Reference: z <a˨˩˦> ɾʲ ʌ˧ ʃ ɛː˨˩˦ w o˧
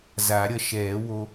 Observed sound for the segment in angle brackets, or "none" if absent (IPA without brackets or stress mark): a˨˩˦